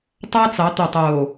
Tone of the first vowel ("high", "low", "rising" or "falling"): high